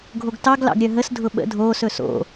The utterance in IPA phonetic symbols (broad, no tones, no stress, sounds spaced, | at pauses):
ɡʱ o ɡ t ɑ ɡ l ɑ̰ ɡ ɾʲ œ ɦ ə s dʱ ʊ ɓ ə̰ dʱ oː s ɵ s o̰